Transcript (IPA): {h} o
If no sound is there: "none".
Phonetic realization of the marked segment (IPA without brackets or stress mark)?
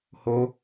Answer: h